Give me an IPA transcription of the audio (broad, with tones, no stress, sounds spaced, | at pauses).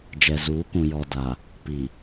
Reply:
d͡ʒ ɛ˨ z uː˨˦ k ũ˨ j ɔ˨ d a˨ | p i˨